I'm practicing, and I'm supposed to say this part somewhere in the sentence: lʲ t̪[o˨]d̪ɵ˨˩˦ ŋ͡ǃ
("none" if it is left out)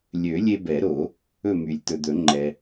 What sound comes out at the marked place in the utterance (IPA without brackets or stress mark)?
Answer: ɵ˨